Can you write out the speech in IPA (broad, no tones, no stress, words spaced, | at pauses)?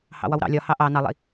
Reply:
hɑ̰wɒwɾɑ̰ lʲɒ hɑʔɑ nɑlˠḭ